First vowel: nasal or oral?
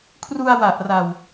oral